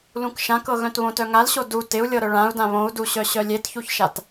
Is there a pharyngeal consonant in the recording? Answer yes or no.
no